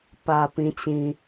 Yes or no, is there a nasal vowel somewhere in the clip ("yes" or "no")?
yes